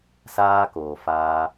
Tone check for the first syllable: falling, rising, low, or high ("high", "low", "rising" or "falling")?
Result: high